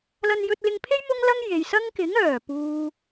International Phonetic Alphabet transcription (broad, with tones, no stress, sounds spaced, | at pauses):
l ɐ˧ n j ɵ˧ t̚ l ɪ˧ ŋ pʰ e˥ j m ʊ˥ ŋ l ɐ˥ ŋ j e˨ j s ɐ˥ ŋ k ɪ˨˥ ŋ œː˨˩ p uː˨